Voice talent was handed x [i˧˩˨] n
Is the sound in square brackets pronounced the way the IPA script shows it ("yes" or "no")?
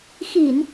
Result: yes